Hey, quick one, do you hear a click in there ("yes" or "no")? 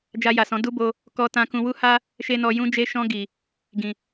no